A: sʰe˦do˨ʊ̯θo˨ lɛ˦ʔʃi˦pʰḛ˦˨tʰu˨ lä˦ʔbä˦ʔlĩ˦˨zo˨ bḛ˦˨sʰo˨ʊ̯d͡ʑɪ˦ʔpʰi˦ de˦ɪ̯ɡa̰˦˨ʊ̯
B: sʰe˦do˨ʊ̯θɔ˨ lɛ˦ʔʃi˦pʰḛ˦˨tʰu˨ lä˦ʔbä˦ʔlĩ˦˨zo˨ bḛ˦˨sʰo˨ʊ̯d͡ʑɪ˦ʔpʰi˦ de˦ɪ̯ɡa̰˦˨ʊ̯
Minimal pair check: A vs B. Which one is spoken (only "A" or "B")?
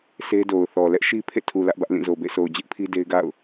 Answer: B